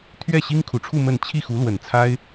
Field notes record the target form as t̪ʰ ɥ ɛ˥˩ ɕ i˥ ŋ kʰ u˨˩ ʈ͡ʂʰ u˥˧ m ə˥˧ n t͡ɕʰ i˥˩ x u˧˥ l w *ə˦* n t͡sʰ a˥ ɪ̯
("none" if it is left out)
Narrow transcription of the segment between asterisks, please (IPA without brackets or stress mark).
ə˨˩